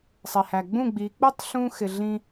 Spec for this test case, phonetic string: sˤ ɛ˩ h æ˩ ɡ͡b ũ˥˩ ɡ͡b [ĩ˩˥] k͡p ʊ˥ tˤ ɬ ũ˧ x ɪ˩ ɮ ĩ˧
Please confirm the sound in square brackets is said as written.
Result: no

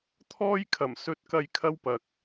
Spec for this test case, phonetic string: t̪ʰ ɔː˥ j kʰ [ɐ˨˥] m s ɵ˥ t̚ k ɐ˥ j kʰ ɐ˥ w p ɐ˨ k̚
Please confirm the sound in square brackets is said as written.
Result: no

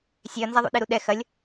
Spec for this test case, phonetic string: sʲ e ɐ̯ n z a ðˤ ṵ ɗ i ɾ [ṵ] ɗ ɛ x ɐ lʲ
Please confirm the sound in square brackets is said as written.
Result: no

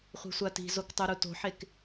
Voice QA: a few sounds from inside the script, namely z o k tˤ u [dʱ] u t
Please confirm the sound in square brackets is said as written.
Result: no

